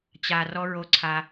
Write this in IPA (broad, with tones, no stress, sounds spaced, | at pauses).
t͡ɕ a˨ r ɔ˦ ɹ o˦ ǀʰ a˦